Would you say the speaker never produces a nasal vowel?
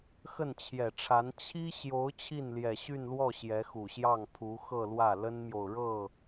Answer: yes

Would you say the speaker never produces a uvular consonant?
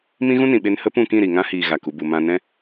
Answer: yes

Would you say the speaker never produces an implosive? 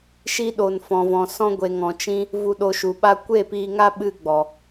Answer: no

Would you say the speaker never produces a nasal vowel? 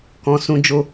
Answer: no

